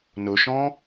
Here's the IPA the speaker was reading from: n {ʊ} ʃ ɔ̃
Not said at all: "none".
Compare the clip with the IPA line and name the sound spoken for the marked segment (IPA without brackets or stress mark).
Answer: ʊ